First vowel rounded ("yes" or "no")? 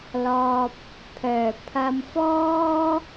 yes